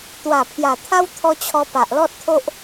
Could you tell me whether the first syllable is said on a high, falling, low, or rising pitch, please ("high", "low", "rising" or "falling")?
low